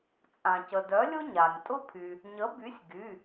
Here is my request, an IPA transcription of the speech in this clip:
t͡sʼ ã˩ c ə˩ d œ˨˥ lʲ ʊ˥ ɲ a˩ nʲ tʼ ʊ˥ pʰ y˩ | ɲ ə˨˥ b y˨˥ sʲ ɡ y˩˧˩

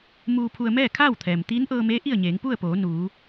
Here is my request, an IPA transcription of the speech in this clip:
m uː˧ pʰ u˧ ə̯ m ɛː˥˨ kʰ aː˥˨ w t̪ʰ ɛː˩ m t̪ iː˧˥ n ʔ ɤː˧ m eː˧˥ ʔ i˥˨ ə̯ ɲ eː˩˧ ŋ p u˥˨ ə̯ p oː˩˧ n uː˩˧

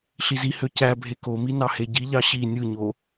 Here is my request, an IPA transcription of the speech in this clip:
ɬ i z i h ø c æ bʱ e k o m i n ɑ h e ɟ i ʎ ɑ ɕ i nʲ ɯ ɲ o

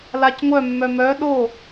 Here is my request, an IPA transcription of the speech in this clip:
l a c ŋʷ œ mː œ m œ ɗ o

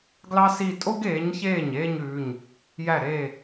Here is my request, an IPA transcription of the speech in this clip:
ɡ l ɑ˥ s iː˥˧ tʼ o˥ ɡ eː˨˥ ɲ ç eː˥˩ ɲ eː˥˧ ɲ ʉː˩˧˩ ɲ | j æ˥˩ ɾ eː˥˩

